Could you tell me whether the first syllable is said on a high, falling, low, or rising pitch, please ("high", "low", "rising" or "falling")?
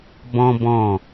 high